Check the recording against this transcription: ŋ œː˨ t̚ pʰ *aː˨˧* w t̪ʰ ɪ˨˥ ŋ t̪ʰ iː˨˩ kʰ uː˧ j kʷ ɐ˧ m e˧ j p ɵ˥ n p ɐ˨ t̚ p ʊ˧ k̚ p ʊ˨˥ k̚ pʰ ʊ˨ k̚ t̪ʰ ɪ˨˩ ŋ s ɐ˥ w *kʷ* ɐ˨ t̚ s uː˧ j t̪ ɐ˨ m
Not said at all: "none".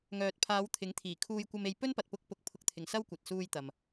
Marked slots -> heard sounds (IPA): aː˨˧, kʷ

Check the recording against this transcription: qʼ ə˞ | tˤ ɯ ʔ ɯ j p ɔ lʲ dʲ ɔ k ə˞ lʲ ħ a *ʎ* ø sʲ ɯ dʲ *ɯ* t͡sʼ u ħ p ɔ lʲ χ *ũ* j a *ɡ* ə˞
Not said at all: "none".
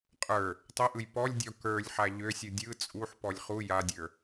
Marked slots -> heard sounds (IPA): ʎ, ɯ, u, dʲ

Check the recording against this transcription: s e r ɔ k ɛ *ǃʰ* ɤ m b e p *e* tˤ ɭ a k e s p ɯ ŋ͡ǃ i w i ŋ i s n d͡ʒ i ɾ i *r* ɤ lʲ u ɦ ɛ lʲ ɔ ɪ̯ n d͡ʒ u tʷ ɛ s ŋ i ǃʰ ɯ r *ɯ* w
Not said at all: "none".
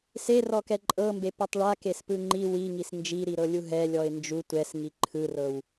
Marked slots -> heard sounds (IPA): ǃʼ, ɛ, ɾ, ɤ

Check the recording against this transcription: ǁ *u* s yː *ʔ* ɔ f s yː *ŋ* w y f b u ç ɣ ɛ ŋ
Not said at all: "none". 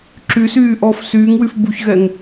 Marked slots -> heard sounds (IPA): y, ʔ, ŋ

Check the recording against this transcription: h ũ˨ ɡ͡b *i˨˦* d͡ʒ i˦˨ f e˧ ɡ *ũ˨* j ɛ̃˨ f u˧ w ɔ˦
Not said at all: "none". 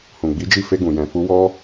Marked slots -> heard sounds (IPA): i˨˦, ũ˨

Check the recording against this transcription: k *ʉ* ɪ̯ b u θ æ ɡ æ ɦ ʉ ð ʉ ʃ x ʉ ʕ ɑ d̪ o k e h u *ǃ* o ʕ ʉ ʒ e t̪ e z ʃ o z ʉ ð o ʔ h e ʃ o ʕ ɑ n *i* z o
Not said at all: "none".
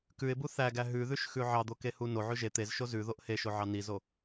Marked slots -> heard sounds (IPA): ʉ, n, i

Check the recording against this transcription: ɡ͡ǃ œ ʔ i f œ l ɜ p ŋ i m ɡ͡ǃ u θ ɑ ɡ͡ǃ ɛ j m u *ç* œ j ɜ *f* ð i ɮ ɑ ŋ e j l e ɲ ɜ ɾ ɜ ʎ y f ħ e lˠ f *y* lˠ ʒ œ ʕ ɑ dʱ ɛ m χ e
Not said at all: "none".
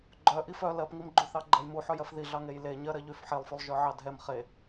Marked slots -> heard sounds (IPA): ħ, f, y

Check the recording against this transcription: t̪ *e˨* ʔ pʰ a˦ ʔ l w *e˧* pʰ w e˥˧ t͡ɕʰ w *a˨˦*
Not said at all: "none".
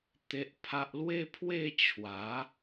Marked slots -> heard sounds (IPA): e˦, e˦, a˨˦

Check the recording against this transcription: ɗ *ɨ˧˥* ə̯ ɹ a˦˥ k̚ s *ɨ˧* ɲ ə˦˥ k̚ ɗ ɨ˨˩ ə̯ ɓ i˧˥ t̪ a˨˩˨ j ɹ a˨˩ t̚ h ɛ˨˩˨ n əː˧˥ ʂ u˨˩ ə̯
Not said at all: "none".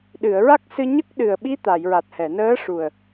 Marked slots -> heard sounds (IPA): ɨ˨˩˨, ɨ˧

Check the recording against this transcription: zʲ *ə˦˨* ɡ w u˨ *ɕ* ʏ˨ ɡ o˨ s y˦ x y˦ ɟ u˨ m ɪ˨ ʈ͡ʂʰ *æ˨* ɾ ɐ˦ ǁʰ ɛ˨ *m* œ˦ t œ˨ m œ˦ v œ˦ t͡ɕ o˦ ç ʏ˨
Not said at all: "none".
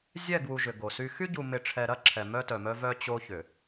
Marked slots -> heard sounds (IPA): ɛ˦˨, ʒ, ɛ˨, m

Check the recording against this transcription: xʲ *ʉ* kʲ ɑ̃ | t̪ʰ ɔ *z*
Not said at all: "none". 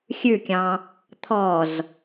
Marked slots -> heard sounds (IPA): ʉ, z

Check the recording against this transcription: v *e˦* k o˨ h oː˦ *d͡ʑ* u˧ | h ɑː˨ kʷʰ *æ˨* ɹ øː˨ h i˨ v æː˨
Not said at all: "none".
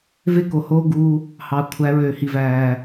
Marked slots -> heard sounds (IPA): e˦, ɡ, æ˨˦

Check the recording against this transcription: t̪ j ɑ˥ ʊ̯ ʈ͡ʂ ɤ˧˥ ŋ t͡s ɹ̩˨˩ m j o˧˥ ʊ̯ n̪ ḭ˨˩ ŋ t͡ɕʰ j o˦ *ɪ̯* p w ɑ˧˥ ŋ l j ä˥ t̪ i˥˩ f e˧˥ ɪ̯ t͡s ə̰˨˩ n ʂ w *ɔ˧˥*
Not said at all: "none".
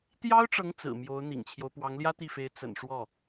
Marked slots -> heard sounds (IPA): ʊ̯, ɔ˥˩

